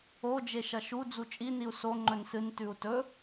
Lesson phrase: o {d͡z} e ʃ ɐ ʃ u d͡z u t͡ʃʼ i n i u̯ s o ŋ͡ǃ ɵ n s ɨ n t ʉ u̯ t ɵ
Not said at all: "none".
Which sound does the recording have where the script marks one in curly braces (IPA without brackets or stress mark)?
d͡ʒ